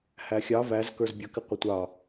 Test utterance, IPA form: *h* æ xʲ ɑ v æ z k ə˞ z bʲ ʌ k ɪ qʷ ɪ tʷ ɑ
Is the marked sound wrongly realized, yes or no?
no